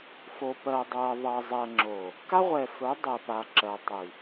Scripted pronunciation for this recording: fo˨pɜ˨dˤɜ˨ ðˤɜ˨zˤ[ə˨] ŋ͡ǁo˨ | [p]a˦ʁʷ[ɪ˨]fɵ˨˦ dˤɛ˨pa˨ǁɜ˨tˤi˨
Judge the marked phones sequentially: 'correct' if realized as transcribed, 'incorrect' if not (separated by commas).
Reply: incorrect, incorrect, incorrect